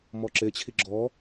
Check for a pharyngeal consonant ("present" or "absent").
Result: absent